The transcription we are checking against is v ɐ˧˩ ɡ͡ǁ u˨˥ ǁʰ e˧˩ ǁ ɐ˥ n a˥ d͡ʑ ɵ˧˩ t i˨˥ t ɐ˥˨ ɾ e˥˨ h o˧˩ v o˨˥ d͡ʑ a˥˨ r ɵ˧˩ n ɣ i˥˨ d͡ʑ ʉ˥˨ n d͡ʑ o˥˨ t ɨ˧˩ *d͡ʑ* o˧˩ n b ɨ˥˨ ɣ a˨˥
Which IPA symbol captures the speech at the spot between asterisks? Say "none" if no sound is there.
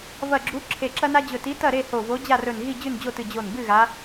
d͡ʑ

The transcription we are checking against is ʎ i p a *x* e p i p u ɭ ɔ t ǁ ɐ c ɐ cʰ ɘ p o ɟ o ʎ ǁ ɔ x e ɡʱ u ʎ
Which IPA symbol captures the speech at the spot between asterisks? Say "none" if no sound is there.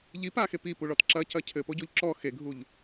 x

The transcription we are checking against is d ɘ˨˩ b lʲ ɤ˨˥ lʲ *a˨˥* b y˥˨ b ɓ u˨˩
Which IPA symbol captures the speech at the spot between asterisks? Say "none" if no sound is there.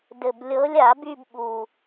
a˨˩˦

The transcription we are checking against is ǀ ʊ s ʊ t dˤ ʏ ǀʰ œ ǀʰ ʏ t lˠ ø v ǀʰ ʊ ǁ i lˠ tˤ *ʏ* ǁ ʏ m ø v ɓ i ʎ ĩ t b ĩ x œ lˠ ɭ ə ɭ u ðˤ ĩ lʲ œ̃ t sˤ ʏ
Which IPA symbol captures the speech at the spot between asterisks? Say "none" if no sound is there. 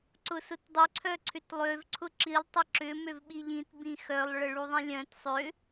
ə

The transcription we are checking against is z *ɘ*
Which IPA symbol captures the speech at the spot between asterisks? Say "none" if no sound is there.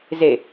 e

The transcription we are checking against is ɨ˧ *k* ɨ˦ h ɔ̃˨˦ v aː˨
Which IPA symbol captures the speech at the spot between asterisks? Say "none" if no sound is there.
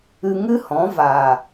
ŋ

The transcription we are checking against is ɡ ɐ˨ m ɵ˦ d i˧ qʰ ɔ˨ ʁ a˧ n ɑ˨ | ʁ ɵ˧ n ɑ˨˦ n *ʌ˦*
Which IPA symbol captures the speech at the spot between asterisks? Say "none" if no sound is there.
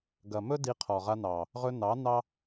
ɑ˦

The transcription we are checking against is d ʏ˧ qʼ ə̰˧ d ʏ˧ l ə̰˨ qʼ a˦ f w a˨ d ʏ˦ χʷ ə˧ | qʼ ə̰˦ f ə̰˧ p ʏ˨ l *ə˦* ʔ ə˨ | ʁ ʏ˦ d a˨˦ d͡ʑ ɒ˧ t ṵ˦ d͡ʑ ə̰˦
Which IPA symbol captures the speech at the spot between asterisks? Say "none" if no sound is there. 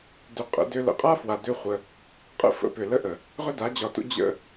ə˦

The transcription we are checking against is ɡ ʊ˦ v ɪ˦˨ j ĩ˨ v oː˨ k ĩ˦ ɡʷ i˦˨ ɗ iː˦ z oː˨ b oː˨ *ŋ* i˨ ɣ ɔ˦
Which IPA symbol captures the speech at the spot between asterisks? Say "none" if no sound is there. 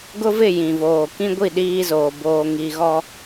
ŋ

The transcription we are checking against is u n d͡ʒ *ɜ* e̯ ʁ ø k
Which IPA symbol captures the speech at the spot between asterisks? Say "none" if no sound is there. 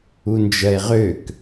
ɜ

